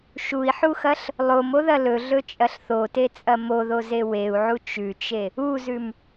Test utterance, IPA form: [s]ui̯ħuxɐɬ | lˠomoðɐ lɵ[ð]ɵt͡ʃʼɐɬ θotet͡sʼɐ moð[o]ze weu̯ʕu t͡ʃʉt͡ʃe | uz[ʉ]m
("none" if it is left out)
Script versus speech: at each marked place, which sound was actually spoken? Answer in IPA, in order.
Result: ʃ, ɮ, o, ʉ

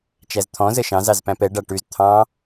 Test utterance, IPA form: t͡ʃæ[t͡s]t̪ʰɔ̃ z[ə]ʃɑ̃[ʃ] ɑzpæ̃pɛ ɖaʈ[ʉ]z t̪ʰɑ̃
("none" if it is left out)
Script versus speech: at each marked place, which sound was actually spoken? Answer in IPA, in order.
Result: z, ə, z, ʉ

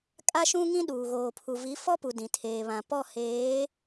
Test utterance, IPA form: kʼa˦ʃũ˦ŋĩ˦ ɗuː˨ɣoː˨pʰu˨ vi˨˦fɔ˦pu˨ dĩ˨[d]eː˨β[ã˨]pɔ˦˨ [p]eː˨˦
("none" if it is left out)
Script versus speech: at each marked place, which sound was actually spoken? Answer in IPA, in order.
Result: tʰ, ã˨, h

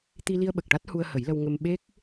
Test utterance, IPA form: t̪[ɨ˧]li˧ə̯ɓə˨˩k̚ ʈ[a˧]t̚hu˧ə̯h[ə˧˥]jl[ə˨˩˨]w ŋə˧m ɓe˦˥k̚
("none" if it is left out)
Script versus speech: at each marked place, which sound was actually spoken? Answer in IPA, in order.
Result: i˧, a˦˥, ə˨˩˦, ə˧

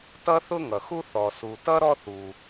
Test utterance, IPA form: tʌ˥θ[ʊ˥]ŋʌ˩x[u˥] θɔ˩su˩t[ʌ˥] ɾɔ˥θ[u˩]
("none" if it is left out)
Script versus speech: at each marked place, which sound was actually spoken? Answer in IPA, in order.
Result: ʊ˥, u˥, ʌ˥, u˩

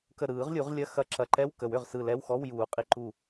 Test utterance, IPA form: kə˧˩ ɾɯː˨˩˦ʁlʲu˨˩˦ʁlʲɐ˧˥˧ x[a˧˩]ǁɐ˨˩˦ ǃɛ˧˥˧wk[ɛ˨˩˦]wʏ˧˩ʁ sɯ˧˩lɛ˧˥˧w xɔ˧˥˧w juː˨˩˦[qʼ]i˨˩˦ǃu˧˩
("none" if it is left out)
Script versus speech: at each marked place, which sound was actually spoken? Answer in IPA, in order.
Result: ɐ˧˩, ə˨˩˦, qʼ

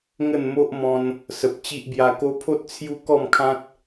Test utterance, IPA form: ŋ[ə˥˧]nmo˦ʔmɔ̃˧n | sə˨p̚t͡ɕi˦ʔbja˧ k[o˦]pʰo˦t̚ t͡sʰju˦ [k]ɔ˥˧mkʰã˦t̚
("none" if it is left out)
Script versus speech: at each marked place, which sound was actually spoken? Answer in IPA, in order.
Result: ə˥˧, o˧, k

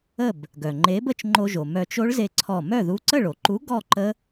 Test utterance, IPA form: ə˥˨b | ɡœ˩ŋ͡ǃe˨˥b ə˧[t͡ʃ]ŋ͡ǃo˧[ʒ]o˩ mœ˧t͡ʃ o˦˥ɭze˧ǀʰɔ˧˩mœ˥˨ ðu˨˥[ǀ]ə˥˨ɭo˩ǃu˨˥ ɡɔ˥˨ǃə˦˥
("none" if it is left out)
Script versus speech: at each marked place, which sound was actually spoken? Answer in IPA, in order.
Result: t͡ʃ, ʒ, ǀ

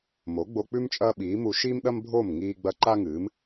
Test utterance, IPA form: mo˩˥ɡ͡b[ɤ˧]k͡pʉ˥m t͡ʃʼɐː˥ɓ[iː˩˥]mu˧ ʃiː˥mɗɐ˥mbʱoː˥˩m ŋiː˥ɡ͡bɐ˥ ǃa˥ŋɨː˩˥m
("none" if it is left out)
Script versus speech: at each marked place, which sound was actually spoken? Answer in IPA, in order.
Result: o˧, iː˩˥

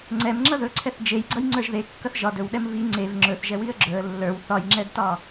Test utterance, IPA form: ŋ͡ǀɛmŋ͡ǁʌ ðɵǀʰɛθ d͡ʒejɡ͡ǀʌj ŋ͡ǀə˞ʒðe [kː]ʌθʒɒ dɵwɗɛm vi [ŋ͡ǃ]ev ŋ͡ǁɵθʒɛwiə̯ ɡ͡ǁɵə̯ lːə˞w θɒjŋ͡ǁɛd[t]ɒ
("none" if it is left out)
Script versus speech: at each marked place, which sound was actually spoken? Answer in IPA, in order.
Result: kː, ŋ͡ǀ, t

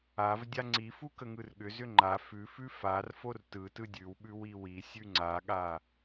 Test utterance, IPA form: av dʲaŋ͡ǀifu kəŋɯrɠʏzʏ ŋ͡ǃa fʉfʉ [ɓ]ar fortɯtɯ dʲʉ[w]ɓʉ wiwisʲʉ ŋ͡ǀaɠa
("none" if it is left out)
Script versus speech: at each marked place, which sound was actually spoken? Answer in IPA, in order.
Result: f, w

